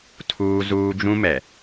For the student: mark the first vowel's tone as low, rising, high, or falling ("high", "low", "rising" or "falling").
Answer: high